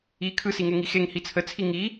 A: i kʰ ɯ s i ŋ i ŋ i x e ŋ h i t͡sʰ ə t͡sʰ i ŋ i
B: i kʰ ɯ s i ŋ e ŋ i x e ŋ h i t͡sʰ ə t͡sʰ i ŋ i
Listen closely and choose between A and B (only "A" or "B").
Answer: B